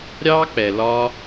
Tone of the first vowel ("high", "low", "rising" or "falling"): high